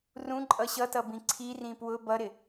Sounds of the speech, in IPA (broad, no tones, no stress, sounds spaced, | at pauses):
r ũ ǃʼ ʌ ɕ ʌ t ʌ b ĩ ǀʰ i r ĩ p w ʊ b ʌ ɾ ɪ